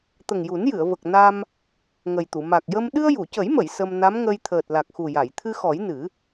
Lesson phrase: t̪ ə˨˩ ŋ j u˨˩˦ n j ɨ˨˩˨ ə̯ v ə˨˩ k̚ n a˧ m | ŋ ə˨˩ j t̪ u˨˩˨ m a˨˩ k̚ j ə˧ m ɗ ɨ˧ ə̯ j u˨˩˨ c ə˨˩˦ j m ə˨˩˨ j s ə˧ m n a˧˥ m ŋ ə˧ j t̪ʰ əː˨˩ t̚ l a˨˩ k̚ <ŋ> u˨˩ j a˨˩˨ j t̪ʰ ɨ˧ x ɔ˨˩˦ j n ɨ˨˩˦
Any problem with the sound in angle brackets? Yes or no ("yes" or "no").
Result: yes